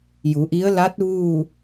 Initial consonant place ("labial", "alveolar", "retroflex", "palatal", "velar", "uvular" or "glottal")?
palatal